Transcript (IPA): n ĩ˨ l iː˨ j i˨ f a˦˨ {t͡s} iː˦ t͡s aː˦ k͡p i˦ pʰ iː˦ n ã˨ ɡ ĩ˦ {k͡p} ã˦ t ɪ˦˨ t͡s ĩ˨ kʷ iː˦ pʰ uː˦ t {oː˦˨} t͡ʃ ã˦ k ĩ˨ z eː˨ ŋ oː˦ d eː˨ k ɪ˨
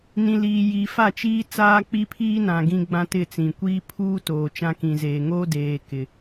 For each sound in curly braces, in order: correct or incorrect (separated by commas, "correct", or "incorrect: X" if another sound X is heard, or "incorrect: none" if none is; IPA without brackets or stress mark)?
incorrect: t͡ʃ, incorrect: ɡ͡b, incorrect: oː˨